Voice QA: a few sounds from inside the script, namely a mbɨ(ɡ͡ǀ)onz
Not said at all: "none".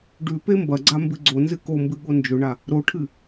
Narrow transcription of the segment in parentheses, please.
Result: ɡ͡ǀ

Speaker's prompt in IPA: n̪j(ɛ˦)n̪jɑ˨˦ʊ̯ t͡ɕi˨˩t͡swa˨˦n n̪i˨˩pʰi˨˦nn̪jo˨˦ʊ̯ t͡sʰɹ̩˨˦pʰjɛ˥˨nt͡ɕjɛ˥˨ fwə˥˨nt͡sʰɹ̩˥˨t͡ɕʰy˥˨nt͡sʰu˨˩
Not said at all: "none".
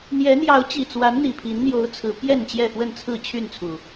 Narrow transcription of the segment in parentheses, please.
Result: ɛ˨˦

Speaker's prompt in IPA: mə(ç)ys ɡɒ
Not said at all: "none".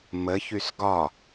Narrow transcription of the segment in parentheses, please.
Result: ç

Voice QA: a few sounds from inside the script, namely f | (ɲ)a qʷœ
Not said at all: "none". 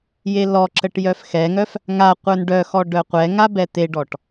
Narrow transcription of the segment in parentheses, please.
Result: ŋ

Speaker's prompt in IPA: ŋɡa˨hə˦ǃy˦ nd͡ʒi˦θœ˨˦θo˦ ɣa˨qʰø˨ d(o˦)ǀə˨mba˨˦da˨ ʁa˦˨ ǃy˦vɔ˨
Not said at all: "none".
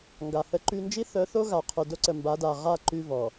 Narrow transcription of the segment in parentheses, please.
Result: o˦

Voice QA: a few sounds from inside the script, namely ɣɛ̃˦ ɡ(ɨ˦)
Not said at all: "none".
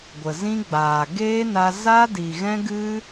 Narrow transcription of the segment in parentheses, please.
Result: ɨ˦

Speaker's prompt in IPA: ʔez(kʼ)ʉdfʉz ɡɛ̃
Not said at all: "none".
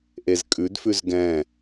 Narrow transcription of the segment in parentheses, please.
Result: kʼ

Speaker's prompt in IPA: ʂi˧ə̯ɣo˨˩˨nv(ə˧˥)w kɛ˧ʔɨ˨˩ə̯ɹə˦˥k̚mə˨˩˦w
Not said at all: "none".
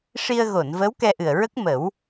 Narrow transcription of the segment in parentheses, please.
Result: ə˧˥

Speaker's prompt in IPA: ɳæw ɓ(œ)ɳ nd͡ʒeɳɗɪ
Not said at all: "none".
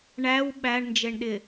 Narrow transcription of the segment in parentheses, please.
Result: æ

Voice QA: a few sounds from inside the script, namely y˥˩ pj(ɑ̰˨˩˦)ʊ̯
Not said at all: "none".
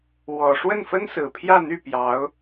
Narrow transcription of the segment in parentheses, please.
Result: ɑ˧˥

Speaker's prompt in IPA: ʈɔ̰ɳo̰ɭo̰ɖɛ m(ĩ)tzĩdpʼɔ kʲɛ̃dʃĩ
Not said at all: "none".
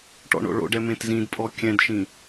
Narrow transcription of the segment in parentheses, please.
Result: ẽ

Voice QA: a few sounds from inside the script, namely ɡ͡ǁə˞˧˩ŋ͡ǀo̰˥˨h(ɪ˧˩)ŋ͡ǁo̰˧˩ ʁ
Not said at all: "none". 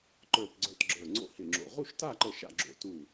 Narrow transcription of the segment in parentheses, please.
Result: ɪ˧˩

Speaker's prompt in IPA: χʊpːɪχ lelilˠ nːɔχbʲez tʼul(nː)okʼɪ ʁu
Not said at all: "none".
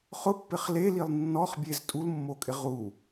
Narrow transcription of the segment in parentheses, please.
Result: mː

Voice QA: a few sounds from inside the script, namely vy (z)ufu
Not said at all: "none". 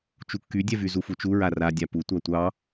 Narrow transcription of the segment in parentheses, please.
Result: z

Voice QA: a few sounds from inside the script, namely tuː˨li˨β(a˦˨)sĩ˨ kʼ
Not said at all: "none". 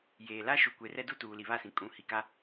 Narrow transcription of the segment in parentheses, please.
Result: a˦˨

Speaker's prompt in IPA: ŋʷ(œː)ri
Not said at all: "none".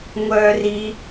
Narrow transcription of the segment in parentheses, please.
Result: œː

